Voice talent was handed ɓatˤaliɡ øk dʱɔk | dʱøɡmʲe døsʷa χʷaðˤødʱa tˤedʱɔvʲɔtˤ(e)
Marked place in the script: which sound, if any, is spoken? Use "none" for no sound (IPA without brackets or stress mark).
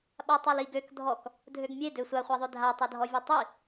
i